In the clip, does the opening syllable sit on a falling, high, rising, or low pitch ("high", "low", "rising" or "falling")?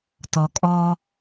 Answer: low